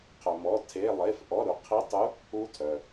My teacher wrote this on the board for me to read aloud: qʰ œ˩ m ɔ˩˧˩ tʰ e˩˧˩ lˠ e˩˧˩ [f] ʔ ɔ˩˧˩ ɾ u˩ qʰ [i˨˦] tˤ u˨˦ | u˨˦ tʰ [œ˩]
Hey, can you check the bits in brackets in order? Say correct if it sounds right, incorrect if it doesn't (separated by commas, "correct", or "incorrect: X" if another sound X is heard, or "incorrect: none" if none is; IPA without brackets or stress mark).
correct, correct, correct